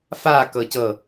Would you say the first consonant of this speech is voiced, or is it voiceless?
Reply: voiceless